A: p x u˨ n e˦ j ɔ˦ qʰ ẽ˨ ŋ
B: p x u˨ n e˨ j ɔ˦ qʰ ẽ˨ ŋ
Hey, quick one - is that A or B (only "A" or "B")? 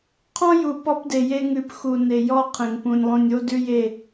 B